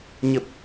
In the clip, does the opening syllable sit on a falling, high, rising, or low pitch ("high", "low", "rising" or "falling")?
low